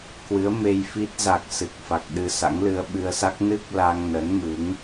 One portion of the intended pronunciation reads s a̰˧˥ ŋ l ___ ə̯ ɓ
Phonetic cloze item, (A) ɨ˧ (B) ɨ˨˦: A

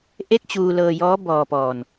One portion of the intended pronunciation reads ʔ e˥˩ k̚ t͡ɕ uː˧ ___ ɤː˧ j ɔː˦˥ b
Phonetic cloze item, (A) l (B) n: A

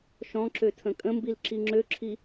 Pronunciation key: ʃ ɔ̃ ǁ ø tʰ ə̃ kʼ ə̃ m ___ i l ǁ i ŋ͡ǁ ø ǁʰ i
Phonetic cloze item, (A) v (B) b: B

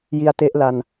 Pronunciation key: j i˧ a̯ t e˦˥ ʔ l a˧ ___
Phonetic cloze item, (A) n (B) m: A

